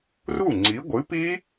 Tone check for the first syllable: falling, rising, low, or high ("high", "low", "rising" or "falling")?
falling